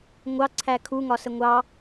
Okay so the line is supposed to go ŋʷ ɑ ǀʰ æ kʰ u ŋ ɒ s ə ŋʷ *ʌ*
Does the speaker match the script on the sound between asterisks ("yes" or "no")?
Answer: no